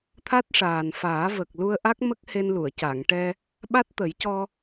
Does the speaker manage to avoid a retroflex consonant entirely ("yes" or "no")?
no